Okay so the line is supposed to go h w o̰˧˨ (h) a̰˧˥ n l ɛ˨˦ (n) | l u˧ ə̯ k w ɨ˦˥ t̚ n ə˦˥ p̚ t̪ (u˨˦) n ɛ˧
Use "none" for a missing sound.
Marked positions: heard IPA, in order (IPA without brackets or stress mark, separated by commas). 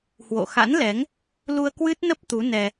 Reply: x, ŋ, u˨˦